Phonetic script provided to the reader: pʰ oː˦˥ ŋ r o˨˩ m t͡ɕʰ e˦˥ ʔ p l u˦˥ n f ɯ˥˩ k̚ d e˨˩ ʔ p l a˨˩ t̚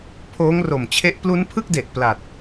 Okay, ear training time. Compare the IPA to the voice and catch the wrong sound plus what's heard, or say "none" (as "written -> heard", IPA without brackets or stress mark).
f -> pʰ